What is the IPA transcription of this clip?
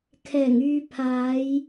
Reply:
kʰɛː˨˩ŋyː˨pʰaː˨˧j

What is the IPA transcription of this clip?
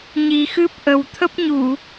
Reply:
ɲi˨˩xɨ˦˥p̚ ʔə˨˩w t̪ʰə˦˥p̚ɲu˧˩˨

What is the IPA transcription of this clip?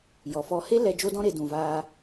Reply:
jɔ˨fɔ˧ he˦ lɛ˧ d͡ʒo˦dɔ̃˦ɾe˧dũ˨ vaː˧

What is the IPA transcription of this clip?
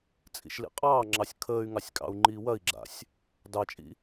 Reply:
t͡sʼḭʃlḭqʼɑːŋ͡ǁɑsʲ kʰəːy̯ŋɑsʲ kʼɑ̰u̯ŋ͡ǃiːwɐi̯ɡ͡ǁa̰sʲ | dɑt͡ʃʼḭ

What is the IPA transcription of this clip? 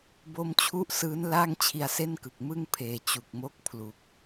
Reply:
bo˦˥mt͡ɕʰu˥˩ʔsɯː˦˥n laː˥˩ŋt͡ɕʰi˧a̯se˥˩nkɯ˨˩k̚ mɯ˥˩ŋpʰeː˨˩ t͡ɕu˨˩k̚mo˥˩k̚pʰlu˨˩k̚

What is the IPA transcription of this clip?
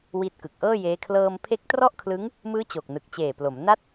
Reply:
wi˦˥t̚kɯ˨˩k̚ʔɤː˥˩jeː˦˥ kʰlɤː˧m pʰe˦˥k̚trɔ˥˩ʔkʰlɯ˦˥ŋ | mɯː˦˥ t͡ɕo˨˩k̚nɯ˨˩k̚t͡ɕeː˨˩plo˩˦m na˦˥t̚

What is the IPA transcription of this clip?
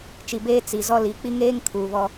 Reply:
t͡ʃi˨beː˦ t͡si˨ zɔ˦li˨˦ k͡pi˦ŋeː˦ŋ kʰuː˨βɔ˦

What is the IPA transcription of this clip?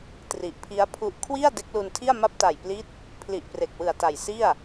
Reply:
tri˨˩ʔpʰi˦˥a̯pʰu˦˥ʔ kʰwi˥˩a̯ de˦˥k̚lu˧ntʰi˥˩a̯ ma˦˥p̚ta˨˩jpli˦˥t̚ | pʰli˨˩ʔpre˨˩k̚wɯ˨˩a̯ ta˨˩jsi˥˩a̯

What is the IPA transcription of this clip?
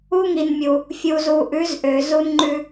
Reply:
uː˦ŋi˨nmʲu˨ | fʲu˨zu˨ʔʉ˨˦z ʔø˨ zu˦nŋ͡ǃʉ˦

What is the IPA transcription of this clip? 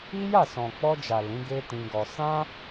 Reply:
i˦ja˦˨ sɔ̃˨k͡pɔ˧d͡ʒa˨ lĩ˨˦ɡe˦tĩ˧ɡɔ˧ sã˦

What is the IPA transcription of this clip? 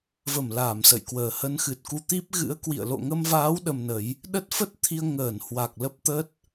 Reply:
və˧˩m laː˧˩msə̰˧˨jkwəː˨˩ hə˨˦nxɨ˨˩t̚ku˧t̪i˦˥p̚ ɣɨ̰˧˥ə̯kwḭ˧˨ə̯ lo̰˧˨ŋə˧mvaː˨˦w ɗə˧mnə˨˦j | ɗə˦˥t̚fə˦˥t̚t̪ʰi˧ə̯ ŋəː˧˩nhwa˨˩k̚ lə˦˥p̚t̪ə˦˥t̚

